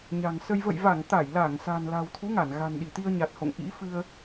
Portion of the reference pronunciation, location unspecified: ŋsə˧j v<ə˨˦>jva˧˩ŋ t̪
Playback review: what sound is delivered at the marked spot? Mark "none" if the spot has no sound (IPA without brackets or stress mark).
ə̰˧˨